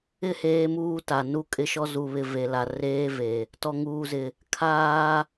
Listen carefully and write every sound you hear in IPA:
ɪ˦ h eː˦ m uː˦ t a˨ n u˦ kʼ ɪ˦ ʃ ɔ˦ z u˨ β ɪ˨ v e˨ l a˨ r eː˦ v e˨ | t ɔ˨ ŋ uː˨ z ɪ˨ | kʰ aː˦

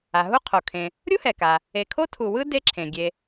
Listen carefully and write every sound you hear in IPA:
a˩ ɦ u˦ qʰ o˩ kʰ ẽ˨ | ɾʲ u˥ h ɛ˩ k a˩ | e˨ kʰ o˥ tʰ u˨ w ɯ˥ d e˦ ǁʰ ẽ˩ ɡʲ e˨

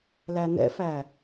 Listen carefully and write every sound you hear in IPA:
l æ n ɛ̰ f æ

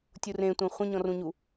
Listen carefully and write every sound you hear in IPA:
tʲ u r ẽ tʷ ẽ χʷ ẽ ɲ ɔ̃ r ũ ɲ u

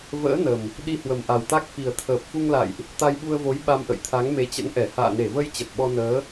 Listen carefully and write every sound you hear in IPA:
v ə̰ː˧˥ n ə˨˩ m | ɗ i˧ h w ə˨˩ m ʔ a˨˩ w t̪ a˦˥ k̚ f i˨˩ ə̯ t̪ʰ əː˨˩ p̚ f u˧ ŋ l a̰˧˨ j ʔ | t̪ a˧ j ɓ u˧ ə̯ v o˨˦ j ɓ a˧ m ʔ ə̰˧˨ j t̪ʰ a˨˦ ŋ m e˨˦ t͡ɕ ə̰˧˥ n ʔ ɛ˧˩ h a̰ː˧˨ n e˧˩ v ə˧ j t͡ɕ ə˨˩ t̚ ɓ ɔ˧ n əː˨˦

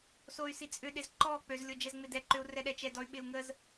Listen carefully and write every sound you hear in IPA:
s o y̯ s i t͡sʼ ʏ ɗ ɪ z ǃ ɔ k͡p ø z lʲ o d͡ʒ ɛ z ŋ͡m ɪ d ɛ ǃ ʏ u̯ r ɛ ɗ ɛ t͡ʃ ɛ d ɔ y̯ ɓ ɪ u̯ ŋ ə z

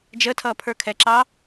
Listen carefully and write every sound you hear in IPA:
d͡ʒ ə tʰ ʌː pʰ ə˞ kʰ ɛ ǁ ɑ

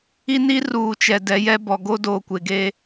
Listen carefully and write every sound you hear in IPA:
i˦ n i˦ r uː˨ t͡ʃ ɛ˨ d ɛ˨˦ j ɛ˦ b ɔ˨ ɡ o˦ d oː˨ kʷ e˨ ɡ eː˦

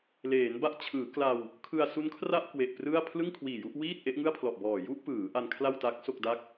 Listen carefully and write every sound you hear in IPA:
l eː˩˦ n b a˥˩ ʔ t͡ɕʰ ɯː˩˦ k l a˧ w | kʰ ɯ˧ a̯ s u˦˥ n kʰ r a˥˩ ʔ k w e˨˩ ʔ p r ɯ˥˩ a̯ pʰ l ɯ˥˩ ŋ kʰ w iː˨˩ j u˥˩ ʔ w iː˥˩ t̚ ʔ e˦˥ ʔ ŋ ɯ˥˩ a̯ pʰ l ɔ˨˩ ʔ b ɔː˨˩ j u˥˩ ʔ p ɯː˩˦ ʔ a˧ n kʰ l a˥˩ w t a˦˥ k̚ s o˥˩ k̚ d a˥˩ k̚

